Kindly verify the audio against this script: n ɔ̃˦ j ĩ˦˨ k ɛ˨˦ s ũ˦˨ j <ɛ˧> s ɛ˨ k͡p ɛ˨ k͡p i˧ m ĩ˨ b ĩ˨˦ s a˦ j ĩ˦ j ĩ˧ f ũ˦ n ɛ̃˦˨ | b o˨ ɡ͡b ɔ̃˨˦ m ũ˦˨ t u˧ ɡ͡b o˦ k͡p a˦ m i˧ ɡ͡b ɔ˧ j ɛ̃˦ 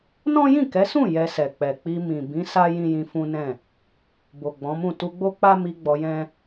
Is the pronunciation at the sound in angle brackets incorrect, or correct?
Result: correct